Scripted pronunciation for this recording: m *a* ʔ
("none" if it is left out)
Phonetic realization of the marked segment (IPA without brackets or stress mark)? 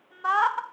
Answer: a